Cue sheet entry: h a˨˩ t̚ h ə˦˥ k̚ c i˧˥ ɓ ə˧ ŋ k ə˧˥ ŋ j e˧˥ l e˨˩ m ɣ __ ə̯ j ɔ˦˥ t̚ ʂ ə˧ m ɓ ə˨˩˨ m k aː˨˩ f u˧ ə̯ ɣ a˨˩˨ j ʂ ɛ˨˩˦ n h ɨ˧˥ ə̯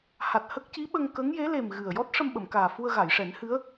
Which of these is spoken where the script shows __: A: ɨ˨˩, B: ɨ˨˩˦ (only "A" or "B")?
A